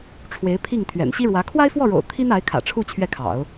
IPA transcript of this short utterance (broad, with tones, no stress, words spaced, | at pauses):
ʈ͡ʂʰwe˧˥ɪ̯pʰi˥˩ŋ t̪ʰɥɛ̰˨˩nɕi˥ɻwä˧˥ kʰwa˥ɪ̯fwɔ˥˩ɻo̰˨˩ʊ̯ t̪ʰi˥n a˧˥ɪ̯kʰä̰˨˩ʈ͡ʂʰu˥˧ t͡ɕʰɥɛ˥˩kʰɑ̰˨˩˦ʊ̯